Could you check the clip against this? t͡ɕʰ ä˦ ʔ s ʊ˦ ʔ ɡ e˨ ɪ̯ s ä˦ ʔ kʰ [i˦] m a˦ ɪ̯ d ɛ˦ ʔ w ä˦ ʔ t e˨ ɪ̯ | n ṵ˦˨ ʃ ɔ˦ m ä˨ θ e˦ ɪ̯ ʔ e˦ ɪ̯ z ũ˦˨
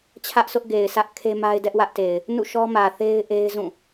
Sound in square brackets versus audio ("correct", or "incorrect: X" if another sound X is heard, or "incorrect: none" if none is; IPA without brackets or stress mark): incorrect: e˦